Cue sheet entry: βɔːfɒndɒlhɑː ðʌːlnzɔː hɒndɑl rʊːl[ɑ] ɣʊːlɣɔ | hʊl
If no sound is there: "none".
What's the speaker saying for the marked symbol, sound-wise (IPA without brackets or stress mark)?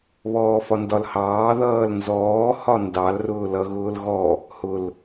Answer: ʌ